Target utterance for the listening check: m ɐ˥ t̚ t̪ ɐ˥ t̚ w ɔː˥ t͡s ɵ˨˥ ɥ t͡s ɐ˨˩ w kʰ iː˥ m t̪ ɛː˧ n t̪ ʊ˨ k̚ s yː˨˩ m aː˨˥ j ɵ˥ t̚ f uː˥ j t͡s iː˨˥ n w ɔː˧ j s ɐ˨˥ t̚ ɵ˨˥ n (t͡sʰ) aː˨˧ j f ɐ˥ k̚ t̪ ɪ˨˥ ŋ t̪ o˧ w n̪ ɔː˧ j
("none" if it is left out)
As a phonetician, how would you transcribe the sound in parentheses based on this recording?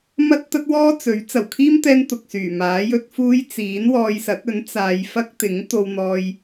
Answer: t͡s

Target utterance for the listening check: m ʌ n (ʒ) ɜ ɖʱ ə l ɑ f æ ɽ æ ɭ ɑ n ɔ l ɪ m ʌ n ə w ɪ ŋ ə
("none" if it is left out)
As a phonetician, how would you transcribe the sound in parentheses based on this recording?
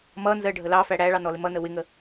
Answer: z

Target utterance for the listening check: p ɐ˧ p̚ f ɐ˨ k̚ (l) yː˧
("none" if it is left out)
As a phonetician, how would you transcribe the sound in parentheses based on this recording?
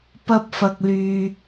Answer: l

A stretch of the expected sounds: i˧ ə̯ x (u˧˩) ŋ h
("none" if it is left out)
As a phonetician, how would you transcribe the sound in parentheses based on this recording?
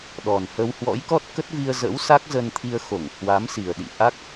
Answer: o˧˩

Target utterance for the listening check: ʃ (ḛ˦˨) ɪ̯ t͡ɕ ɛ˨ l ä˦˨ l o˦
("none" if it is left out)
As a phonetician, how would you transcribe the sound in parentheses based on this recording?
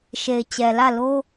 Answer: e˨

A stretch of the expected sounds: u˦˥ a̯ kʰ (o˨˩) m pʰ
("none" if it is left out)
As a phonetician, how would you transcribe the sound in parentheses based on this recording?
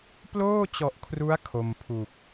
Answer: o˧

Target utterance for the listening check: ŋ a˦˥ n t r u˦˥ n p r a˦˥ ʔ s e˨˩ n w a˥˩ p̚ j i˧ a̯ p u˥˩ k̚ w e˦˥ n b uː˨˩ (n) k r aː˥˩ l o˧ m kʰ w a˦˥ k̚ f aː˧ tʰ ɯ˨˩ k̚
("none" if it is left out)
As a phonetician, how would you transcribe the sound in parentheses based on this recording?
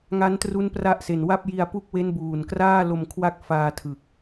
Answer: n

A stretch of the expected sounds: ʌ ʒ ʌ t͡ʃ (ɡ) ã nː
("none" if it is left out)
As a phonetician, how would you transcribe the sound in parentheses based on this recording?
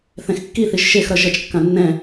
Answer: kː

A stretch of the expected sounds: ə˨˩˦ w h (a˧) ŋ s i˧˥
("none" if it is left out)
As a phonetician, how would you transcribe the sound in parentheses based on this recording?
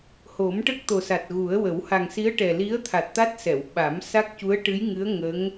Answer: a˨˩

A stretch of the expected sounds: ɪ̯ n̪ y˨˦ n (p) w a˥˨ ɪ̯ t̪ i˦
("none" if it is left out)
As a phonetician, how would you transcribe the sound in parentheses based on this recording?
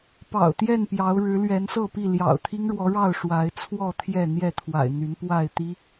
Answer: p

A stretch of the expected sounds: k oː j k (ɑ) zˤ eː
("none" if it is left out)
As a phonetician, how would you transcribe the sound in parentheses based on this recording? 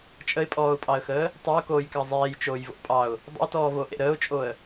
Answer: ɑ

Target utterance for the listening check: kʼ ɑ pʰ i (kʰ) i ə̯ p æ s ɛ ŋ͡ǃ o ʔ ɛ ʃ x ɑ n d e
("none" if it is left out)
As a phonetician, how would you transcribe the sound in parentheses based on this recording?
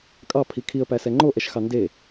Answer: kʰ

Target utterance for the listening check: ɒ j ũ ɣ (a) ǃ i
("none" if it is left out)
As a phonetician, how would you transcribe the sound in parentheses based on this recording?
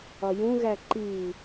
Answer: æ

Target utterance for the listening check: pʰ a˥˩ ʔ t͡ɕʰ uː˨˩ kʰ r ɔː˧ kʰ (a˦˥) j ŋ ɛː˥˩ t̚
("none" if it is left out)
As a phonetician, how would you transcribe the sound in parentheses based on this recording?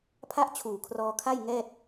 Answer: a˥˩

